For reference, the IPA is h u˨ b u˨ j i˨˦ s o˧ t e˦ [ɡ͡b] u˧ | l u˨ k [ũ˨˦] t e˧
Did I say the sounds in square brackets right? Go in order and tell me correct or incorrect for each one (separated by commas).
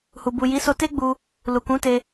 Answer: correct, correct